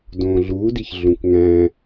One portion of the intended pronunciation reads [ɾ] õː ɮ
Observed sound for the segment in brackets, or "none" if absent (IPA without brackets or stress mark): d